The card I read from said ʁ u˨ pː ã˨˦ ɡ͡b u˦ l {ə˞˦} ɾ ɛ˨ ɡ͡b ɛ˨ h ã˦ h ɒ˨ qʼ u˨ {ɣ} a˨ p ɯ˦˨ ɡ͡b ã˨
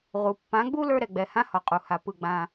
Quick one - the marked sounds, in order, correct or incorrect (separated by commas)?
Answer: correct, incorrect